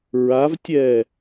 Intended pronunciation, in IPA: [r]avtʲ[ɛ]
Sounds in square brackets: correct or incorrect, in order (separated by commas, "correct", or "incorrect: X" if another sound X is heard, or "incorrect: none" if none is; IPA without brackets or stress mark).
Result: incorrect: ɹ, correct